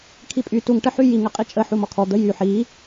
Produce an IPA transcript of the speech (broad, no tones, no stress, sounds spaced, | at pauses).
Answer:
kʰ i pʼ y t u ŋ ʈ ə ħ y j i ŋ ə qʼ i t͡ʃʼ ə ħ u m ɔ kʰ ɔ d̪ ə j y ħ i